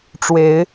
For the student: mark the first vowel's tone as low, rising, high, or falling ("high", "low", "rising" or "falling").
rising